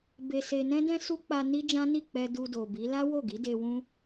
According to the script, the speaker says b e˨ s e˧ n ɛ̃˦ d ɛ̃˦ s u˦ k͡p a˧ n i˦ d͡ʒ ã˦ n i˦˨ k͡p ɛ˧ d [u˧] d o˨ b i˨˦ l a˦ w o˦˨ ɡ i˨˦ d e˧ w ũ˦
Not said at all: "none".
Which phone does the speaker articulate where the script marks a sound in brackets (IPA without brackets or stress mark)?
u˧